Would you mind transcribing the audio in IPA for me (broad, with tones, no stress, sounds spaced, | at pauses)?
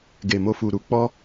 ɡ e˨ m o˧ f u˨ ɾ u˧ k͡p ɔ˦